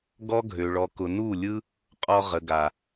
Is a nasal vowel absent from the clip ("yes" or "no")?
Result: yes